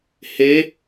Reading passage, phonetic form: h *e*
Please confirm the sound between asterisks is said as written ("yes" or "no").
yes